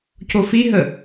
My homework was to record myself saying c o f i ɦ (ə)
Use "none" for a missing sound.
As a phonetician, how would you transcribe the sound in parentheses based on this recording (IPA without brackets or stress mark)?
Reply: ə